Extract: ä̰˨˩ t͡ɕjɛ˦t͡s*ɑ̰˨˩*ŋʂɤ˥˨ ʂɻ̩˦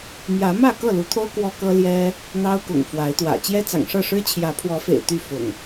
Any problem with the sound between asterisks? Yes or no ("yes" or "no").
no